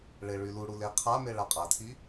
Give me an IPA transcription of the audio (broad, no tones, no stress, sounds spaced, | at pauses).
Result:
ɭ e ɭ y l u ɽ u l e qʰ a m e ɭ a qʼ a tʰ i